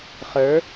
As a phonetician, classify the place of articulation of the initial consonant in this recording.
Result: uvular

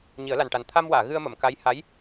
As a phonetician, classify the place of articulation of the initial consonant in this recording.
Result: palatal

